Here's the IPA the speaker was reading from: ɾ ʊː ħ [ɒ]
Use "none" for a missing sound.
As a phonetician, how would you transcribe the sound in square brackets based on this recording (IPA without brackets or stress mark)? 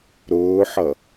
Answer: ʌ